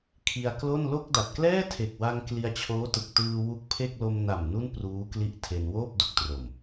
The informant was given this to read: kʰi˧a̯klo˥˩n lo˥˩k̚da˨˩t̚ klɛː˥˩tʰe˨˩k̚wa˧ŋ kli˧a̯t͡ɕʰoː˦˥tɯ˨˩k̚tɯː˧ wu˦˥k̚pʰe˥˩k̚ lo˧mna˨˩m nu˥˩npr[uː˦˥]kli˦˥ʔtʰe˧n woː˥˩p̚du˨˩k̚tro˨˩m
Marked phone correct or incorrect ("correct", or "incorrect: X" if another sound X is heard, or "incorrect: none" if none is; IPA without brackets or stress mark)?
correct